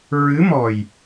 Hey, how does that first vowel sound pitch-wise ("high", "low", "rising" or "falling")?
rising